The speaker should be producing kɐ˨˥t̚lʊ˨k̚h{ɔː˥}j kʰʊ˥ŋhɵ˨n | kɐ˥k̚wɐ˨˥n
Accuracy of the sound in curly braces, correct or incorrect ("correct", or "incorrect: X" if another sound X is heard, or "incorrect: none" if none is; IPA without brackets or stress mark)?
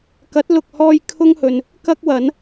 incorrect: ɔː˧